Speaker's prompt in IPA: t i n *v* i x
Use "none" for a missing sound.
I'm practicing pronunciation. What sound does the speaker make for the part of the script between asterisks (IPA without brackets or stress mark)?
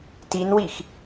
w